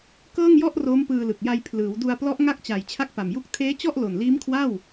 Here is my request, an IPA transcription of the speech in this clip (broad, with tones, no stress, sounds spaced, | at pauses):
k ɤː˥˩ ŋ j ɔ˥˩ ʔ r oː˦˥ m p ɯː˧ l ɯ˨˩ k̚ j a˧ j pʰ l ɯː˩˦ w d u˧ a̯ p l ɔ˦˥ ʔ ŋ a˥˩ k̚ t͡ɕ a˨˩ j t͡ɕʰ a˥˩ k̚ p a˨˩ m j u˥˩ k̚ tʰ eː˦˥ t͡ɕ ɔ˥˩ ʔ l o˨˩ n l iː˦˥ m kʰ w a˥˩ w